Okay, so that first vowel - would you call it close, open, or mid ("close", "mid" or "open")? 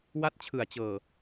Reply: open